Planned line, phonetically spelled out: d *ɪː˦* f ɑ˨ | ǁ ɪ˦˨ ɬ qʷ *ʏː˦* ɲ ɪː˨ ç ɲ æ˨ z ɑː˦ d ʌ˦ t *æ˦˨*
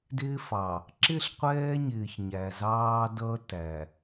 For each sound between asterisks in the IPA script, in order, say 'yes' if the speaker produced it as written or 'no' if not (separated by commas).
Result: yes, no, no